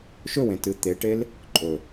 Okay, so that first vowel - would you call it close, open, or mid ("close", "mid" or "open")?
mid